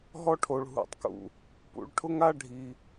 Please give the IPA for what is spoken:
ɦ ɔ˦ ʈʰ o˨ ɭ ɦ ṵ˨ tˤ k ṵ˨ | p ṵ˨ ɭ ʈʰ ʊ˦ ŋ a˦ ɖʱ i˨

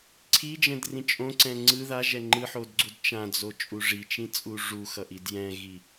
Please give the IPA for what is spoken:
ǀʰ i d͡ʒ ɛ̃ d r ĩ t͡ʃʼ õ ǀ ɛ̃ ŋ͡ǀ ɯ ð a ʒ ɛ ŋ͡ǃ ɯ ħ o d ɡ͡ǀ u d t͡ʃ ã d͡z o t͡ʃʼ u ʐ i t͡ʃ ĩ t͡sʼ u ʐ u x ʌ ʔ i d j ɛ̃ ɣ i

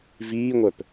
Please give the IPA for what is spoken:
v iː ŋʷ œ p

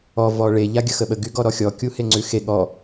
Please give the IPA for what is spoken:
ɔ v ɔ ɭ e ʎ a ɡʲ ə x ə ɓ ə ɡ y ɡ ɔ ɾ ɔ xʲ ɔ kʲ u h e ŋ͡ǀ ʉ x e ɠ ɔ

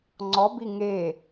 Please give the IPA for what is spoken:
ŋ͡ǀ ɔ b i ŋ e

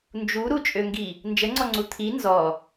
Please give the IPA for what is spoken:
n d͡ʒ u ɾ u t͡ʃʼ ø ŋ ɡ i | n d͡ʒ ə ŋ͡ǀ ɔ ŋ͡ǀ u t̪ʰ i n z ɔ

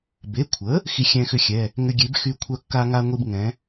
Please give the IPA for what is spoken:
b e˩˧˩ kʷʰ ə˩˥ | x i˧ xʲ ɛ̃˧ x ʏ˧ xʲ ɛ˩˧˩ | ŋ ʏ˧ ɡʲ e˩˥ b x y˧ kʷʰ œ˧ kː a˧ ŋ a˧ ŋʷ i˧ b ŋ ɛ̃˩˥

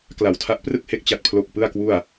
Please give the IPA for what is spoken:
k l a˨˩ w tʰ a˦˥ ʔ p r ɯ˥˩ k̚ h e˦˥ k̚ t͡ɕ a˥˩ t̚ pʰ l o˥˩ k̚ p ɯ˥˩ a̯ k w u˥˩ a̯

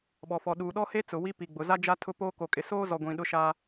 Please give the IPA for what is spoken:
ɓ ɔ˨ f ɔ˨ ɗ uː˨ ɗ ɔ˦ h e˦ t͡s ʊ˨ w i˦ p i˨ ɡ͡b ʊ˨ z a˦ d͡ʒ a˦ tʰ ʊ˦ p oː˦ k o˨ kʼ ɪ˨ s oː˦ z ɔ˨ ɡʷ ĩ˨ ɗ ʊ˦ ʃ aː˦

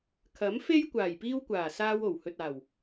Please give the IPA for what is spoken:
kʰ ɐ˨˥ m f e˥ j kʷ aː˨˩ j p iː˧ w kʷ aː˨˩ s aː˧ w o˨˩ w h ɵ˨ t̚ aː˨˩ w

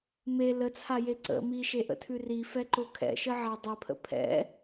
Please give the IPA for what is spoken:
m e l ə t͡sʰ a j e ǀ ə̰ m i ʃ e ʔ ə̰ tʰ ʉ r i f ɛ ǃ o kʰ ɛ̰ ʃ ə ʕ a dˤ ɛ pʰ ə̰ pʰ ɛ̰

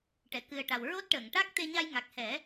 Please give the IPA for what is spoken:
ʈ ɛ˨˩˨ k ɨ˨˩ ə̯ ʈ a˨˩ w ɹ o˦˥ t̚ ʈ əː˨˩˨ ŋ ʈ a˦˥ k̚ t̪ e˧ ɲ a˧ j ŋ a˨˩ k̚ h ɛ˨˩˦

